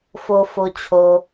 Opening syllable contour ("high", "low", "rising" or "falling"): low